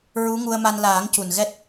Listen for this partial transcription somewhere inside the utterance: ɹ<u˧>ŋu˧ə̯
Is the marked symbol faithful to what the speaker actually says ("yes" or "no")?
no